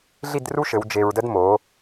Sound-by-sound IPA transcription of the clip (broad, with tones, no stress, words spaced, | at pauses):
ɮi˥˧dru˥ʃɘ˩˧w d͡ʒe˧ɹdə˥d mo˩˧